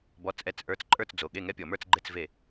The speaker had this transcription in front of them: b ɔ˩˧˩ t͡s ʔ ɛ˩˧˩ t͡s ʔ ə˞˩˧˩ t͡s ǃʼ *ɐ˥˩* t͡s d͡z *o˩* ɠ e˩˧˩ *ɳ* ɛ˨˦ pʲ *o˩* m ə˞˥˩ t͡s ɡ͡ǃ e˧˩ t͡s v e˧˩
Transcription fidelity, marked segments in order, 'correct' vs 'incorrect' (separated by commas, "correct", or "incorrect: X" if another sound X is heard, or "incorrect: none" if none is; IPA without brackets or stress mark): incorrect: ə˞˥˩, correct, incorrect: ŋ, incorrect: ɔ˩